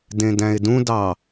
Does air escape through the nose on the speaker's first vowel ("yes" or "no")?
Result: yes